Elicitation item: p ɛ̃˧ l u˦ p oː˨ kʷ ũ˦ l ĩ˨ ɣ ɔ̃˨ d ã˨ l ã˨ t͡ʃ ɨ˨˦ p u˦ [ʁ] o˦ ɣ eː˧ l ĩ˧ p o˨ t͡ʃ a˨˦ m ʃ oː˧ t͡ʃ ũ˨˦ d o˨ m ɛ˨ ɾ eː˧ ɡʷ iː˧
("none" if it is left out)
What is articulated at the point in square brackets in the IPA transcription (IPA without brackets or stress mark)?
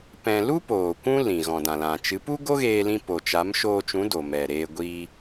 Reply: ɡ